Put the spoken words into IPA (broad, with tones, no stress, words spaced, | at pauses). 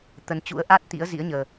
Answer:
t̪ə˨˦nt͡ɕṵ˧˥ə̯ ʔa˦˥t̚t̪ḭ˧˥ə̯ zḭ˧˥ə̯ɲəː˧